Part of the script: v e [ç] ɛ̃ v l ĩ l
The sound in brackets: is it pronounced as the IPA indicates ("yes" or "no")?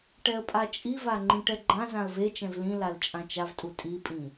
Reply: no